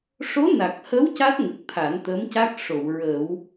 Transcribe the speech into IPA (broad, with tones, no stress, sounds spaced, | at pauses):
ʂ o˧˥ n a˨˩ k̚ h ə˧˥ w c a˦˥ t̚ ŋ ə˨˩ k̚ t̪ʰ a˨˩˦ n t̪ ə˧˥ m c a˦˥ k̚ ʂ o˨˩˨ w ɹ ə˨˩˦ w